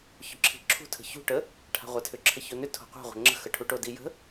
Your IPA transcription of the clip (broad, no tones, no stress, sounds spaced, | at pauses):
ç ɵ ǁʰ i̤ ǁʰ ṳ tʰ ə̤ ç ṳ ʈ ə | ʈʰ a̤ ʁʷ a tʰ ʏ ǁʰ ə ç o n ʏ tʰ o̤ qʷ a̤ ʁʷ ə̤ ŋ͡ǁ ə̤ x ə ʈʰ u ʈ o d i j ə̤